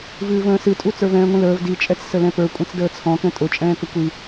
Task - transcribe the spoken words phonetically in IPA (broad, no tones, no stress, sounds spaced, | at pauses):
v ɨː v ə̃ː s ɨ tʼ u t͡s ə˞ v ɛ̃ː ŋʷ ĩ l əː v d i t͡ʃʼ ɛ t͡s s ə l ɛ̃ p ə˞ kʷʼ ɛ̃ t͡s d əː t͡sʰ ɔ̃ k ɛ̃ tʼ ʊ t͡ʃʼ ɛ̃ː k ə kʷ i